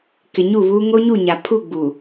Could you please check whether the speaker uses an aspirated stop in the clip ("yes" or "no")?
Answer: yes